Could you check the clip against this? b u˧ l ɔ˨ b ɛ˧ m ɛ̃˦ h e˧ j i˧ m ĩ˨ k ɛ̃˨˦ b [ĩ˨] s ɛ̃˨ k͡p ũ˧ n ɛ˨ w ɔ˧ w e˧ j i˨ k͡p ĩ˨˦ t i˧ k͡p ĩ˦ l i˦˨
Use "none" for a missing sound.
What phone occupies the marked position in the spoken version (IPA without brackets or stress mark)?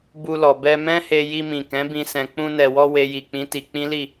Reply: ĩ˧